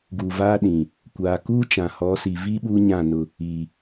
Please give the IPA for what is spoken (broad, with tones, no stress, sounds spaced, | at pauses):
ɡ u˨ v aː˦ ɗ ĩ˨ | kʷ aː˨ k uː˦ t͡ʃ ã˨ h ɔ˨˦ s i˨ v i˦ ɓ uː˦ ɲ ã˦˨ n ʊ˨ | i˨